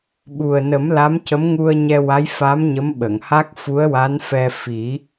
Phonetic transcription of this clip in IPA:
ɓ u˨˩ ə̯ n ə˨˩˦ m l a˧˥ m c ə˧˥ m ŋ u˧ ə̯ ɲ ɛ˧ w a˧˥ j f a˧˥ m ɲ ə˧˥ m ɓ ə˨˩˨ ŋ h a˦˥ k̚ f u˧˥ ə̯ w a˧˥ n f ɛ˧ f i˨˩˦

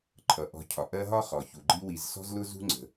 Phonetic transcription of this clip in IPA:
ǃʰ ʌ˩ ʔ ɔ̤˨ cʰ ɒ˩ ʔ ɜ˦ ɦ ɒ˥ χ ɔ˩ ç u˩ ɡ͡ǃ i˦ w i˨ z s ɔ̤˦ z l ʊ˦ z ṳ˦ ŋ͡ǀ ə̤˨

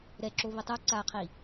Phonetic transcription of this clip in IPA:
ɾ ɛ ǁ o β i tˤ u ǀ a qʰ i

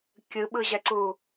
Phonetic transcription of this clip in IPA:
kʲ ɯ ɓ ɯ ʑ ɛ ǀ u

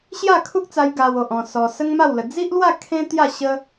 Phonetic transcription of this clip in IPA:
ɕ j a˥˧ kʰ u˦ k̚ t͡s a˧ j ɡ a˧ w o˨ ʔ ɔ̃˧ s ɔ˧ s ə˦ ŋ m a˥˧ w l ə˧ d͡z i˦ ʔ l w a˥˧ kʰ ẽ˦ t̪ j a˥˧ ɕ ə˦

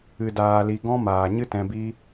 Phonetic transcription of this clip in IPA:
ɨ˨ d aː˧ l i˧ ɡ ɔ̃˦ m aː˨ ɲ ɨ˦ t ɛ̃˧ b i˦

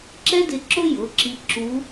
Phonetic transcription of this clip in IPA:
ǁ ɛ˥ d ɪ˧ ǁ ʊ˥ j ʊ˩˧˩ ǁ i˧ ǁ u˧˥

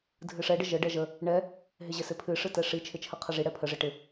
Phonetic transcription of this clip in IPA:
dʱ ɨ ʂ ɛ ɖ ə ʒ ə ɖ ɛ ʒ ə | ɳ ɛ | ɦ ɪ ʑ ɪ s ɪ pʰ ɨ ʂ ɨ t ɛ ʂ i t͡ʃʰ ɪ t͡ʃʰ ə qʰ ə ʐ i ɽ ɛ pʰ ə ʐ ɪ ʈ ɪ

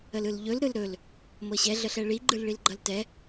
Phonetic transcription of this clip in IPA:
ə l ɯ l ʎ ɵ l ɾ ɯ l ɾ ɵ l | m ɤ ɕ ɛ ɮ ə ɬ ɛ ɭ i ɡ͡ǃ ɯ l ɭ i l ɡ͡ǃ ʌ l t ɛ

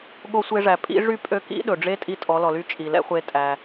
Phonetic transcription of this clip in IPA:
ɠ o˧ sʷ e˧ ʐ æ˩ pʼ ḭ˧˥ ʐ y˥ pʼ ø˧˥ k ḭ˧˥ ɗ ɵ˩ ɖ͡ʐ e˧˥ tʼ i˧ tʼ ɔ˩˧ l ɔ˩ l y˧˥ t͡ʃʼ i˩ l ɛ̰˥ χʷ e˧˥ tʼ æ˩

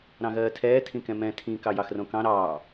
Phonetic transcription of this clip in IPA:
ɾ ɑ̃ ɣ ɜː tʰ ɛː tʰ ĩ k ɛ̃ m ɛ̃ tʰ ĩ k ɑ j ɑ x r õ k ɑ̃ ɾ ɑː

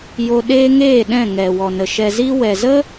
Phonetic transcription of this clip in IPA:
j o˧ ɗ eː˦ ŋ eː˦˨ ɗ ɛ̃˦˨ ŋ ɛ˨ w ɔ˨ n ə˨ ʃ ɛ˧ z i˦ w ɛ˨ z ə˦

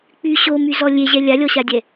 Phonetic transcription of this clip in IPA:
k͡p y ɕ o m y z ɔ lʲ e ʑ ɛ lʲ a lʲ ɔ ɕ a dʲ ɛ

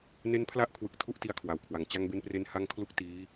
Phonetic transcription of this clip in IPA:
n e˦˥ n pʰ l a˦˥ ʔ kʰ w ɯ˨˩ k̚ tʰ u˥˩ ʔ t i˧ a̯ kʰ w a˨˩ w kʰ w a˨˩ ŋ t͡ɕ a˧ ŋ b e˧ n p r e˧ n h a˥˩ ŋ kʰ l u˥˩ k̚ t iː˦˥

